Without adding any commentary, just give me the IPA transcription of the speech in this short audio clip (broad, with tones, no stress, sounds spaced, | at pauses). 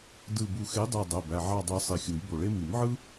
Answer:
d ɯ˧˩ b u˧˩ x e˨˥ dˤ æ˧˩ dˤ æ˩˧˩ b æ˧˩ ʕ ɑ˧˩ dˤ ɯ˨˩˦ sˤ i˧˩ xʲ u˨˩˦ j b o˧˩ ɭ e˥ m i˨˩˦ m ʕ ɯ˥